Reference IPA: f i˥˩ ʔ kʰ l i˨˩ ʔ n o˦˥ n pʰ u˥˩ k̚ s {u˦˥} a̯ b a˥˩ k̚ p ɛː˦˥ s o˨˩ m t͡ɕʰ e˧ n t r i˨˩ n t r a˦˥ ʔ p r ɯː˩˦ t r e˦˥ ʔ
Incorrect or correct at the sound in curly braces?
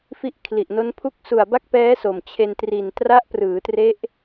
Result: incorrect: u˨˩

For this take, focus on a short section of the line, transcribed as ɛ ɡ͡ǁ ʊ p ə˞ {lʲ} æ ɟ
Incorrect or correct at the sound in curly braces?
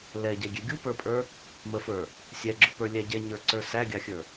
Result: correct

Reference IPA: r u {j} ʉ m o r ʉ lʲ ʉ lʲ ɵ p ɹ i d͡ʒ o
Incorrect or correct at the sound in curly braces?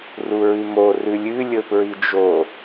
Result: incorrect: ɹ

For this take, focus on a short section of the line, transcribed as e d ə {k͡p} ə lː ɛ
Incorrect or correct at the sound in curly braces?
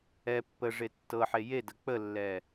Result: correct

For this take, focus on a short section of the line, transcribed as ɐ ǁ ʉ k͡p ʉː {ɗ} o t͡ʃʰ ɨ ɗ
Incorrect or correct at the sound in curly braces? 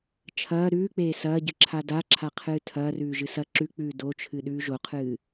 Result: incorrect: d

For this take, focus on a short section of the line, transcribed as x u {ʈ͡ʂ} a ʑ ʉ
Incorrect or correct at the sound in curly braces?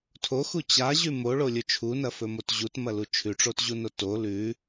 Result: incorrect: t͡ɕ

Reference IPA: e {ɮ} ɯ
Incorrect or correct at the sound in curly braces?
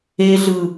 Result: correct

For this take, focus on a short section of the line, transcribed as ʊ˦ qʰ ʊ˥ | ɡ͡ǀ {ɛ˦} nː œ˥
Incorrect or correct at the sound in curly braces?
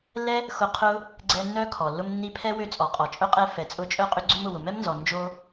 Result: correct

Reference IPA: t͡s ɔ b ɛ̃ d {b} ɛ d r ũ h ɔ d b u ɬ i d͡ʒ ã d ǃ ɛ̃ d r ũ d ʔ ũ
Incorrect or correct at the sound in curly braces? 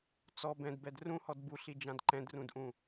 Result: correct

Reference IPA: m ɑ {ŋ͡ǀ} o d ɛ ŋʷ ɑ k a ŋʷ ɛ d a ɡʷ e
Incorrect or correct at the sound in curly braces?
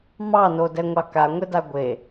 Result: incorrect: n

